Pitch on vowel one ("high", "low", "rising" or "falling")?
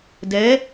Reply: rising